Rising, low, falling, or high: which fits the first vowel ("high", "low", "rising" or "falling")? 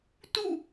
falling